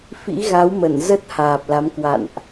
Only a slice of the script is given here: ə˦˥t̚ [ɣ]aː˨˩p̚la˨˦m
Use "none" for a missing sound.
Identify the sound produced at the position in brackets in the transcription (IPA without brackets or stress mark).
h